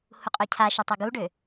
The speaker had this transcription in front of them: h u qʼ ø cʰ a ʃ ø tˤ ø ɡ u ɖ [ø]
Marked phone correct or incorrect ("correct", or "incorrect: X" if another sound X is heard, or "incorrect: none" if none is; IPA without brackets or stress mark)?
correct